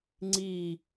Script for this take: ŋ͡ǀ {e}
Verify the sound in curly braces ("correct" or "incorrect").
incorrect